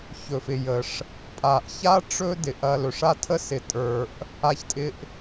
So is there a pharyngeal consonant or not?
no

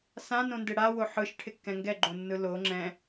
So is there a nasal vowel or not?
yes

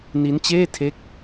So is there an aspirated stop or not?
yes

